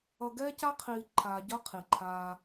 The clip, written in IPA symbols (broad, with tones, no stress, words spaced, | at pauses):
ʌ˨ɡɛː˦ca˦qʰiː˨ ǃʰaː˨ɟʌ˦ qʰi˨ǃʰaː˦